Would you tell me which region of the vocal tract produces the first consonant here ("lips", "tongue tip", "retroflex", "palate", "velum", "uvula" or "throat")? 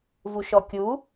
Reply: lips